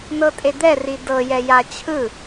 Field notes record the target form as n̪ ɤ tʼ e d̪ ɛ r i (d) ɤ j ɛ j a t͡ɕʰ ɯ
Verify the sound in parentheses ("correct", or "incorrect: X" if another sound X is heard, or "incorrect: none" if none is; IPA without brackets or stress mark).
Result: correct